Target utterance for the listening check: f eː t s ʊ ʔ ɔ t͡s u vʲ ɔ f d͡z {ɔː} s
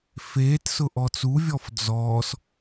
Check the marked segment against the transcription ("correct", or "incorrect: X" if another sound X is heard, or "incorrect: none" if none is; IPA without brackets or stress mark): correct